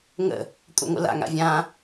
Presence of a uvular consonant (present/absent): absent